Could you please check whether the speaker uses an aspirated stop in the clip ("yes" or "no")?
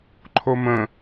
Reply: yes